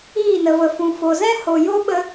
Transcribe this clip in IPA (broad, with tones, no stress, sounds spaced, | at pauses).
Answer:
iː˦˨ n ə˨ v ə˨ f ũ˨ f o˨ z ɛ̃˦ h o˨ j o˦ ɓ ə˧